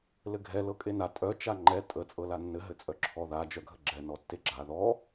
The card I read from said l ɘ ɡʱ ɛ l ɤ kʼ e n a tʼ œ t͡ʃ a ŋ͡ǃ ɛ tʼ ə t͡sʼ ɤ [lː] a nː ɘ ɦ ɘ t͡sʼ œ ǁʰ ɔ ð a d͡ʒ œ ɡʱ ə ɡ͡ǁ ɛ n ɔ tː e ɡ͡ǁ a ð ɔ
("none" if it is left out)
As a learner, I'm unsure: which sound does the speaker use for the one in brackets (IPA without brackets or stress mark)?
l